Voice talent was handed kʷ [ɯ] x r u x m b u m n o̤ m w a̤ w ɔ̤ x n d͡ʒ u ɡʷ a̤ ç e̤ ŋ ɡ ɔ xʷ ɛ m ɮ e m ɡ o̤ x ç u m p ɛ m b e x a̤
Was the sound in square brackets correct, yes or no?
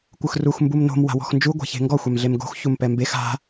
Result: yes